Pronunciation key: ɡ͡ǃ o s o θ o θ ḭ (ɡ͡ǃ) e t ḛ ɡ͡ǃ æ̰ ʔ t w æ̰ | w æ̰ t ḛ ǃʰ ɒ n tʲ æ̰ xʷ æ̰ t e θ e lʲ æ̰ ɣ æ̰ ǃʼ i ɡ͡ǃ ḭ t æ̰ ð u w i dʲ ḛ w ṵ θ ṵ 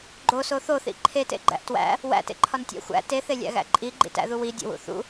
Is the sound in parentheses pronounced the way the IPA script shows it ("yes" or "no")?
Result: no